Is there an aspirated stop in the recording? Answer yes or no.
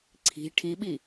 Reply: yes